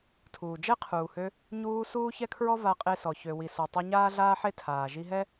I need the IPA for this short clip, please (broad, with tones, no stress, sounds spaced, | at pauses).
tʰ uː˩ d͡ʒ ɛ˥ qʰ uː˩ h ø˧ | ɲ uː˧ s uː˥ ç ɛ˥ kʰ ɹ ɔ˥ v a˧ qʼ e˧ s ɔ˩ ç ø˩ w i˩ s o˩ tˤ ɛ˧ ɲ aː˥ ɮ aː˥ ħ e˥ tʰ aː˩ ʒ i˧ ɦ ɛ˥